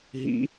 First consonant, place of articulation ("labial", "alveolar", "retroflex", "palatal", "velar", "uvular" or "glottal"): glottal